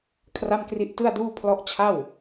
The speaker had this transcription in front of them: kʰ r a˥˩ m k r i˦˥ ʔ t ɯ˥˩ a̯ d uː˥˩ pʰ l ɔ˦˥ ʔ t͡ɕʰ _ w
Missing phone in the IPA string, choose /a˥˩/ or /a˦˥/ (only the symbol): a˥˩